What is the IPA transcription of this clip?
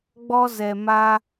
ɡ͡bɔ˧zɛ˨ ma˧

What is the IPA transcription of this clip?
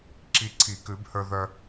ǁi˧ ǀʰi˨˩˦kʉ˨˩˦b hə˞˧ ðœ˧

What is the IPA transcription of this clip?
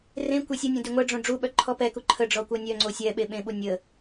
rẽ kʷesʲonʲõ dyŋʷɛɖ͡ʐõ ɖ͡ʐuɓœ ǃʰɔpɛku ǃʰəɖ͡ʐɔ kʷœnʲœŋ͡ǀo sʲɛ ɓeɓẽɓu nʲə

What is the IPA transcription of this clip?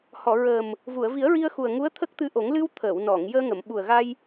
hɔ˨˩˨ ɹəː˨˩m | vu˨˩˨ə̯vi˨˩˦ə̯ɹi˧ə̯xu˨˩ə̯ ŋu˧˥ə̯t̪ʰə˦˥k̚t̪ɨ˧ʔo˨˩˦ŋ lɨ˧wt̪ʰəː˨˩˨wnɔ˨˩˨ŋ jəː˧ŋə˨˩˨m ɓu˨˩ə̯ɣa˧j

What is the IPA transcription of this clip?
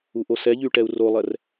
uʔosɛʎy ʈɛu̯rolˠɛr

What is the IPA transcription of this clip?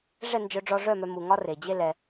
ʐɛ˦˨nd͡ʒœ˧ɖ͡ʐɔ˧ʐœ˦˨ mœ˧mu˨ŋɒ˦ re˨d͡ʑe˦lɛ˧

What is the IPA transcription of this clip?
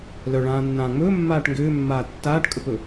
lœɭãːnːãː ŋ͡mɵː mːaːʈŋɡʏːmːaː tːaːʈkʼɵpɵ

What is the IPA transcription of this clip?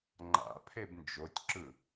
ŋ͡ǃa̰ pʰebnd͡ʒotʲǁɯ

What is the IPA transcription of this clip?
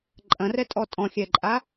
ǃʼɐ̃rɛtʼɔ tʼɔ̃xʲɛǃʼa

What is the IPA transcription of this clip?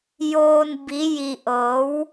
joː˧n bi˧˥ ji˧ʔɤː˧˥w

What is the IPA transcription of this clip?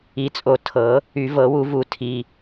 i˨˩˦t͡sʼo˨˩˦ tʰɤ˨˩˦ | y˨˩˦vɤ˨˩˦wu˨˩˦vu˨˩˦ tʰi˩˧˩

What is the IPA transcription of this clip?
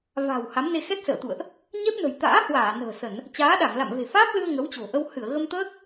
va̤˨˩w ha˨˦mne˧ xɛ˦˥t̚sə̰ː˧˨t̪ṵ˧˨ə̯ʔ | ɲɛ˦˥p̚nə̤˨˩j t̪a̰ː˧˥hwaː˧˩ nə̤ː˨˩sə˧˩˨n | t͡ɕaː˨˦ɗa˧˩ŋ la̰˧˨mve̤˨˩faː˦˥p̚lɨ˧ə̯ ŋə˨˦wt͡ɕo̤˨˩ʔə˧w hɨ˧˩ə̯ɣə˧mt̪əː˦˥k̚

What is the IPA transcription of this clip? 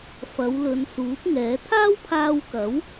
fɐ˨˧w lɵ˨˧n suː˨˥p̚ŋɛː˨˥ t̪ʰaː˥wpʰaː˧wkɐ˨˥w

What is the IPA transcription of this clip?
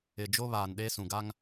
ɪ˨d͡ʒo˦βaː˨nɗe˦ sũ˨ɡa˦ŋ

